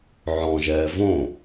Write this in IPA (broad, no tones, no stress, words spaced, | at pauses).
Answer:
ʕɔ̃ʒɛː võ